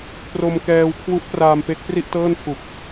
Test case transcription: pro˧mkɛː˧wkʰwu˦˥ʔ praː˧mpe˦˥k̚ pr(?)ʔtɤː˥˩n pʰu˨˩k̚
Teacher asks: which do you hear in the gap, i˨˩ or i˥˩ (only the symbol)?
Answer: i˥˩